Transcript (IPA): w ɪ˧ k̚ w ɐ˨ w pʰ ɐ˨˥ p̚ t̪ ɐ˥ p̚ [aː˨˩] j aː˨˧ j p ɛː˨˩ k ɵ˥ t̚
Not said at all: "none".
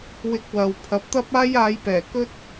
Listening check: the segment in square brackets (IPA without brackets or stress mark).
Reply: aː˥